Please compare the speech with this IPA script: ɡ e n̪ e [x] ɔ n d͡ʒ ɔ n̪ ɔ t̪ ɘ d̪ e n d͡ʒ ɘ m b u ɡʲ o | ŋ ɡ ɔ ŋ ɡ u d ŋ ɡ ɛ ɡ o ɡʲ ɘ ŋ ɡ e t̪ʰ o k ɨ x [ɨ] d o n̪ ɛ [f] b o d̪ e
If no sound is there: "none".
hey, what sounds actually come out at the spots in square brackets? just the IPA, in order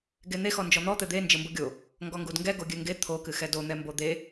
x, ɛ, m

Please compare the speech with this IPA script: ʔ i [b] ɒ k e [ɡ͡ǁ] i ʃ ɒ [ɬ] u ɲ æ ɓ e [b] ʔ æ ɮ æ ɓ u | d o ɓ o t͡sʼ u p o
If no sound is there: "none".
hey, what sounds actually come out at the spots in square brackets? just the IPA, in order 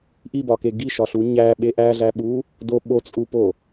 b, ɡ, ɬ, none

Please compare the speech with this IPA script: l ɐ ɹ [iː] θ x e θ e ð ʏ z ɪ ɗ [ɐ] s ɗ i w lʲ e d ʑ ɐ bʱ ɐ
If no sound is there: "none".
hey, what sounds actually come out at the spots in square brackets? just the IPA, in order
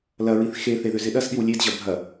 i, ɐ

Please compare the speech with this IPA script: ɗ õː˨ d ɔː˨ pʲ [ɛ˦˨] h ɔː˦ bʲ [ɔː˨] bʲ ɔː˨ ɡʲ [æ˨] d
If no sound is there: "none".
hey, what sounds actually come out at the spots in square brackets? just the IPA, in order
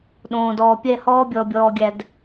ɛ˦˨, ɔ˨, æ˨

